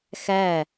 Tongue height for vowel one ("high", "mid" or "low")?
low